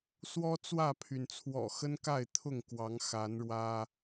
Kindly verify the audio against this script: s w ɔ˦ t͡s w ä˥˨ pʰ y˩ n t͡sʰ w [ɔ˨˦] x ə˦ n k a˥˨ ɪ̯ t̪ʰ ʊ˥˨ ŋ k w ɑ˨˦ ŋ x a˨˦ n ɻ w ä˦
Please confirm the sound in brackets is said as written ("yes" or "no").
no